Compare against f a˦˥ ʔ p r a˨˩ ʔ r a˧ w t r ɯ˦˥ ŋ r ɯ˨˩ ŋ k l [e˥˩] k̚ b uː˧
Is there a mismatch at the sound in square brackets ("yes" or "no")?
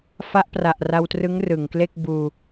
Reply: no